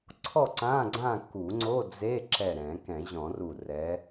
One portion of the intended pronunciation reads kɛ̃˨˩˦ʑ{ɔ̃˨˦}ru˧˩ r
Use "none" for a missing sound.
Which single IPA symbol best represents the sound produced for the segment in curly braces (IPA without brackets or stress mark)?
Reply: ɔ̃˨˩˦